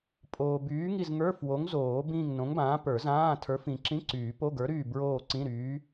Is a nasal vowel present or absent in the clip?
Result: present